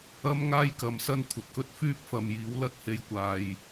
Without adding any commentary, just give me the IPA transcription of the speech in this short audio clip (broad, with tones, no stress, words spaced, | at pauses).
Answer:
ɐ˥mŋaː˥jkɐ˨m sɐ˥nkʷʰɐ˨t̚kɵ˥t̚ fyː˥p̚fɐ˨m jiː˨˥wlɐ˥t̚he˧j kʷaː˨j